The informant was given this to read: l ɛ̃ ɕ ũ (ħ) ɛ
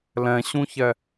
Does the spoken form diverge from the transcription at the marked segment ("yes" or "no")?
yes